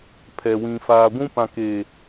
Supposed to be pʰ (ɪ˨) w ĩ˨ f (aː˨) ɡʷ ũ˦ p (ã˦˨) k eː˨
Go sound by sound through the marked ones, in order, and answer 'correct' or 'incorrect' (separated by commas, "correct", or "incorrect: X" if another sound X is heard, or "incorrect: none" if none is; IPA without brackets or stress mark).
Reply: incorrect: ɛ˨, correct, incorrect: ã˨